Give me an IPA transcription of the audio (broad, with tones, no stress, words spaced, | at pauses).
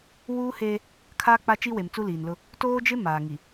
wuː˦heː˦ | kʰaː˦k͡pa˦ t͡ʃi˦we˨m t͡su˦liː˨nlʊ˦ | toː˦d͡ʒɪ˦ maː˨ ŋi˨